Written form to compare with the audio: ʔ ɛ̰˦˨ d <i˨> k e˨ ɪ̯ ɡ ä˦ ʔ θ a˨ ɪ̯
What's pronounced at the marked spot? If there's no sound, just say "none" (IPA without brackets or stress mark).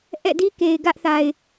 i˦